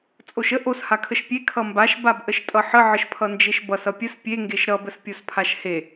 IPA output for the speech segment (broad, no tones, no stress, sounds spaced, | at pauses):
t͡sʼ o ʃ ə ʔ o s h a kʰ ə ʃ pʲ e kʰ ʌ m b a ʃ b a b ʔ ə ʃ tʼ ʌ ħ ə ʕ ə ʃ pʰ ʌ n d͡ʒ e ʃ b ʌ s ʌ pʲ ə s pʲ e ŋ ɡ e ʃ ɾ ʌ b ə s pʲ o s pʰ a ʃ h e